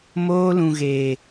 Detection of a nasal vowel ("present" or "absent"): present